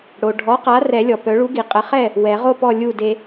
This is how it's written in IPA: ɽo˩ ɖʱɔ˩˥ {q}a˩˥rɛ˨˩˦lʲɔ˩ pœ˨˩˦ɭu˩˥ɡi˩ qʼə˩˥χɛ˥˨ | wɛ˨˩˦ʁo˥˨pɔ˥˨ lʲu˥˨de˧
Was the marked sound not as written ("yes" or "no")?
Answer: no